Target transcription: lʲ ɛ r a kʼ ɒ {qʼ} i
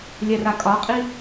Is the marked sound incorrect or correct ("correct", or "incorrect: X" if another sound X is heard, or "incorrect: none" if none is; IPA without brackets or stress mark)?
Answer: correct